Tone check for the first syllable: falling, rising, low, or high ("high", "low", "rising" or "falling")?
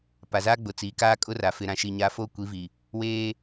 low